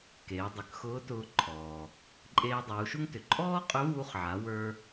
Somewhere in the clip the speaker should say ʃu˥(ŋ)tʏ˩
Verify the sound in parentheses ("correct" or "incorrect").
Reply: correct